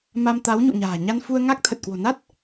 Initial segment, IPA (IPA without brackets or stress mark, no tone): m